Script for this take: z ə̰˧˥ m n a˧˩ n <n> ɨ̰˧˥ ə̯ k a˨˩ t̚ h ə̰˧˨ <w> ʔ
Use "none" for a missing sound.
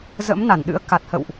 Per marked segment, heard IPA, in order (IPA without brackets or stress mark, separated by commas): ɗ, w